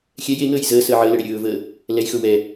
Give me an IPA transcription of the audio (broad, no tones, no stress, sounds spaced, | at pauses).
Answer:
xʲ ɛ j e ŋ əː j z əː s əː ʕ əː l ə ɽ e ɾʲ ɵː v əː | l ɛ j x ɵ w ɛ